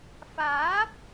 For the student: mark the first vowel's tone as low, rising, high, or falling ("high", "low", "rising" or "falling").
rising